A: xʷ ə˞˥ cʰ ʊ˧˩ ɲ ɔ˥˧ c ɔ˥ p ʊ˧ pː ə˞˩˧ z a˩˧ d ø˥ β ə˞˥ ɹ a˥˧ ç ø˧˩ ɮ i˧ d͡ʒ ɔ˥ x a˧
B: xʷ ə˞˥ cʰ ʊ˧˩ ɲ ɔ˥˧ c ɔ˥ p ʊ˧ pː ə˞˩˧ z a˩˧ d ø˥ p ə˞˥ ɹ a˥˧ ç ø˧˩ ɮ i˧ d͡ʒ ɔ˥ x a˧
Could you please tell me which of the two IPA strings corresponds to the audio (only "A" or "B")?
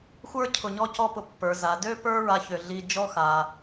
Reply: B